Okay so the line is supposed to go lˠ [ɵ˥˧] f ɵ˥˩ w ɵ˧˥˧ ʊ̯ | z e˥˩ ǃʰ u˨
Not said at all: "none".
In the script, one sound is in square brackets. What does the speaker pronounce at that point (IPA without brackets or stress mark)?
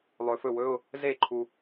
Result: ɵ˨